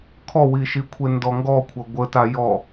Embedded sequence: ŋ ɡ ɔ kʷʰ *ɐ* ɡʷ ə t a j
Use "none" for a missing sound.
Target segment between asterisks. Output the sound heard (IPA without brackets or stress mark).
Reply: ɐ